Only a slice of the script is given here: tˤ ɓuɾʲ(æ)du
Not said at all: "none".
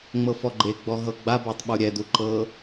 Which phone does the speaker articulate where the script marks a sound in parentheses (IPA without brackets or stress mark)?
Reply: ɛ